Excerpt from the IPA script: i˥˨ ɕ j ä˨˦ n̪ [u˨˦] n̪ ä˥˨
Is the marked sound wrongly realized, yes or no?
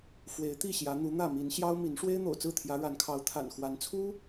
no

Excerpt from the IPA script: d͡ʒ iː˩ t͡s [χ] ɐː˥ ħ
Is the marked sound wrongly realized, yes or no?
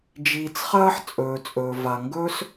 no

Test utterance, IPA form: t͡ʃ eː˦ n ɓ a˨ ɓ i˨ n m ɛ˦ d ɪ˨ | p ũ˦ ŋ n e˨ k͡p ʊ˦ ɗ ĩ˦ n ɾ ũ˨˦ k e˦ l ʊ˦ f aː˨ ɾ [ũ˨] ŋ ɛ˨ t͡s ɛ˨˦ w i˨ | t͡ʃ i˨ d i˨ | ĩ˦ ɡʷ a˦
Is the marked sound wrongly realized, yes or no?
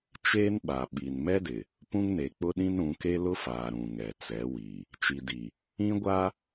no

